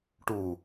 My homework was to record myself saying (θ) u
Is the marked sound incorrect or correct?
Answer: incorrect